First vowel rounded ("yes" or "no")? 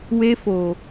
no